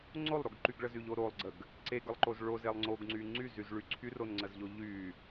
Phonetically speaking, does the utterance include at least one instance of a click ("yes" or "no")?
yes